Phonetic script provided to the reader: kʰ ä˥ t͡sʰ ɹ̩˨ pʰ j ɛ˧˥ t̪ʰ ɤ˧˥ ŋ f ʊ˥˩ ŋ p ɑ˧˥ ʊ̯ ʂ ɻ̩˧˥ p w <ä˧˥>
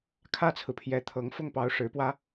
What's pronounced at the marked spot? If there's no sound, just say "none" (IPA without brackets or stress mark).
ä˥